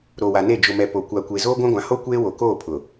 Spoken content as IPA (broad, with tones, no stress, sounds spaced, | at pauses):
ɾ o˨ w a˨ n e˦˨ d͡ʒ ʊ˨ m ɛ˨ p o˨ kʷ a˨ kʷ e˨ z oː˦ ɡʷ ã˦ ɡʷ ã˨ h o˦ kʷ eː˦ w o˨ k oː˦˨ pʰ ʊ˨